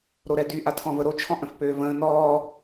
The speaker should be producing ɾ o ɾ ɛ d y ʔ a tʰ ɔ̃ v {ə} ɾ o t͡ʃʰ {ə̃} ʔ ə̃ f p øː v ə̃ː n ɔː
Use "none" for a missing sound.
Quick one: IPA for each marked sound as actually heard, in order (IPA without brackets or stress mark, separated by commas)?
ə, ɔ̃